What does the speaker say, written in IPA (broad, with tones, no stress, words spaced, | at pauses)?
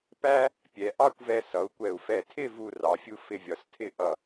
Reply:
pæ˥ | pʲɛ˩˧ ʔɑ˥˧kʷvɛ˧ sʌ˩˧u̯kʷɛ˧˩u̯ fɛ˧˩tʰɪ˥˧ vu˥˧rɑ˩˧fʲu˥ fɪ˧vʲɒ˩˧stʰɪ˥˧ ʔʌ˧˩